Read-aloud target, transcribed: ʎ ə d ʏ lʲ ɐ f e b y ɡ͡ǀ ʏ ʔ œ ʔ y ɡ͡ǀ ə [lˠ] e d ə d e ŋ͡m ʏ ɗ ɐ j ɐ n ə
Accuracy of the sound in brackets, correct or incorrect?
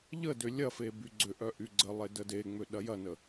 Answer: correct